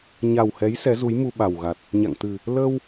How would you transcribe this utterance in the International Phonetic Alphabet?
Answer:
ɲa˨˩whɛ˨˦j sɛ˨˦zu˨˦jmu˧ ɓa˨˩wɣa˨˩t̚ | ɲa̰˧˨ŋt̪ɨ˨˩ | ləː˧w

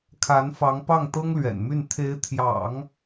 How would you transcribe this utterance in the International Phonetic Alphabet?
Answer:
kʰa˧˥nfɑ˧˥ŋ pɑ˥˩ŋt̪ɤ˥ŋlɥɛ̰˨˩nmy˥˩n t̪ʰe˧˥ɪ̯t̪ʰjɑ̰˨˩˦ŋ

